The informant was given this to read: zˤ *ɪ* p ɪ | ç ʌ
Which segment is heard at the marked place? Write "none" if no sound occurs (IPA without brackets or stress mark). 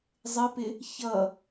ɪ